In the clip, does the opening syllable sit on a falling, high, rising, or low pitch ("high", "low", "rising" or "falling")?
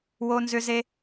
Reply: high